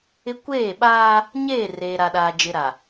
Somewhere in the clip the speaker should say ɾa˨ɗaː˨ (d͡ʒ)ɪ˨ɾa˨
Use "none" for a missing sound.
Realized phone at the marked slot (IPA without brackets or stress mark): d͡ʒ